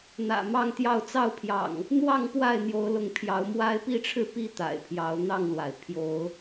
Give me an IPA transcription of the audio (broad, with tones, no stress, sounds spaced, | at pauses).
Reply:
n̪ ä̰˨˩ m ɑ˥˨ ŋ t̪ j ɑ˥˨ ʊ̯ t͡s ɑ˥˨ ʊ̯ pʰ j ɑ̰˨˩ ŋ | n̪ w ɑ˥˨ ŋ p w a˥˨ ɪ̯ n̪ j o˨˦ ʊ̯ l ʊ˨˦ ŋ pʰ j ɑ˨˦ ʊ̯ m w a˦ ɪ̯ p i˥˨ ʈ͡ʂʰ ɻ̩˦ p i˥˨ t̪ a̰˨˩ ɪ̯ pʰ j ɑ˨˦ ʊ̯ n̪ ɑ˥˨ ŋ l w a˩ ɪ̯ pʰ j o˨˦ ʊ̯